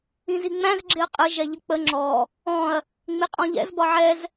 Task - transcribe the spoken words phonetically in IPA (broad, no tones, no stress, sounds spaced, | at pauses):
ĩ z i ŋ͡m æ̃ z ɡ͡ǁ ɪ ɐ̯ qʼ ə ʒ ɛ ʎ ə k͡p ə ŋ͡ǁ ɔ | ɔ̃ ɐ̯ | ŋ͡m ɪ qʼ ɔ̃ ʎ ɛ̰ z b ɒ ʕ ɛ z